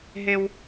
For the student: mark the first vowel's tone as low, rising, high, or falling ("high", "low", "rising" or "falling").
high